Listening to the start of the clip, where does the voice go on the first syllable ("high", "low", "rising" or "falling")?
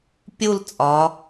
falling